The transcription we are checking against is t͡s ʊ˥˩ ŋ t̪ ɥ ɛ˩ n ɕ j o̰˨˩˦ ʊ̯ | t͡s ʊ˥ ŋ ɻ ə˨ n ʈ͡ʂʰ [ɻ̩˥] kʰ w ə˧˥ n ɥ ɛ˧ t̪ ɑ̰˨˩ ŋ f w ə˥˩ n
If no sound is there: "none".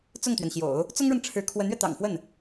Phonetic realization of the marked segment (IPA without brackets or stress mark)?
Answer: ɻ̩˧˥